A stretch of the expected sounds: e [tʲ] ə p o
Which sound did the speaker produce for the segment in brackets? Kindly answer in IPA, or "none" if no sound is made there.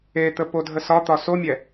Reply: t̪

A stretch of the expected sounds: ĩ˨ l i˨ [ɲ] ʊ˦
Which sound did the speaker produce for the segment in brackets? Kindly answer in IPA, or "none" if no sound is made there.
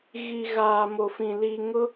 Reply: ŋ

